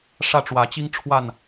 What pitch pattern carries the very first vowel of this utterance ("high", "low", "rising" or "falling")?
falling